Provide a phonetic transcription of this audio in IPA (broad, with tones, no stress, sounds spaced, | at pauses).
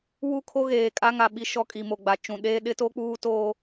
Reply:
w u˦˨ kʰ o˦ ɣ eː˨ kʼ a˦ ŋ a˨ ɓ i˦ ʃ ɔ˦ kʼ i˨ m o˨ ɡ͡b a˨ t͡ʃ ũ˨ ɗ eː˦ ɗ ɪ˦ t o˦ k͡p uː˦ t oː˦